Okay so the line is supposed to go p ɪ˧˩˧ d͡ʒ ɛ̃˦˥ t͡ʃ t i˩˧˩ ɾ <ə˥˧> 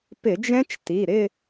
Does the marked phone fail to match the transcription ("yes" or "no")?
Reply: yes